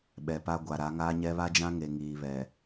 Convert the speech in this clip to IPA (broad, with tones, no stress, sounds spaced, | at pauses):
ɓ ɛ˨ p a˦ ɡʷ a˨ ɾ a˨˦ ŋ aː˦ ɲ ɛ˦ β a˦ d͡ʒ ã˦ ŋ e˨ ŋ iː˨ β ɛ˨